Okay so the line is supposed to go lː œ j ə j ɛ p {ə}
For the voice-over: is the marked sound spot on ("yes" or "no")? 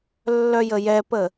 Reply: yes